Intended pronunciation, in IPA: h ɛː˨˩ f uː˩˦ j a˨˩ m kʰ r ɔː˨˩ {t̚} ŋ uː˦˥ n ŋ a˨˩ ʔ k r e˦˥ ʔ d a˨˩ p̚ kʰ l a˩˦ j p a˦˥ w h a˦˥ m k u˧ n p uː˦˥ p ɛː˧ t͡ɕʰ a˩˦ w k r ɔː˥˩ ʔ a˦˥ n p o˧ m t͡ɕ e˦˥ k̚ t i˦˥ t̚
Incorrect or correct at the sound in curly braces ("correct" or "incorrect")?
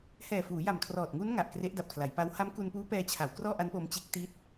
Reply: correct